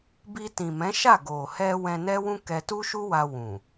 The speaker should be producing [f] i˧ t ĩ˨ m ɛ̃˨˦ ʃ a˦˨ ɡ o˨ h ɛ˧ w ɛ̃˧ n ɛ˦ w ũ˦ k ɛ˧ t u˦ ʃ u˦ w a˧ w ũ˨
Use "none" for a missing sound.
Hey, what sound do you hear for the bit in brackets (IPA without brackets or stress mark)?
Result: b